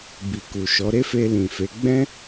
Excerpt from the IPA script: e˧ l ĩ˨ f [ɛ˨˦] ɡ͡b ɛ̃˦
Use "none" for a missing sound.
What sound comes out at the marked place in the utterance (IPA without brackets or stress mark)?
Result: e˨˦